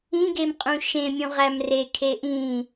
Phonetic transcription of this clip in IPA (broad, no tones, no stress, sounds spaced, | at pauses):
ĩ ɡ e m qʼ ũ ʃ ẽ mʲ ũ ʁ æ m r e kʰ e ʔ ĩ